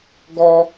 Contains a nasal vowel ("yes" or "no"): no